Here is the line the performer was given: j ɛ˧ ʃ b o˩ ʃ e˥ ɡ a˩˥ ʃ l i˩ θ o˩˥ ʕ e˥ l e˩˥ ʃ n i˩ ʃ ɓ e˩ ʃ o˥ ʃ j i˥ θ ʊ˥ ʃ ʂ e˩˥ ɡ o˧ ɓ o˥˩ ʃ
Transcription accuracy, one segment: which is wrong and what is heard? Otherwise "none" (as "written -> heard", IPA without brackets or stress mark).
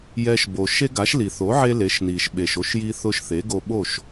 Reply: ʂ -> θ